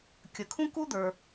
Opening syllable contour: low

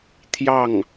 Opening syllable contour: falling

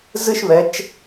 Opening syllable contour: falling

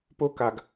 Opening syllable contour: high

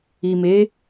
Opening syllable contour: low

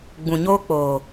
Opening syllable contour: low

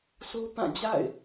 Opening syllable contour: high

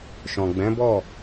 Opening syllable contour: low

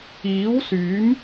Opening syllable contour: rising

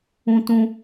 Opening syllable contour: high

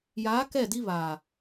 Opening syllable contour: rising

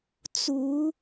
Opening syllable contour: rising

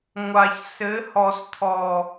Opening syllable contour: low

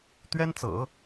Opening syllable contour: high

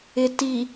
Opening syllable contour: low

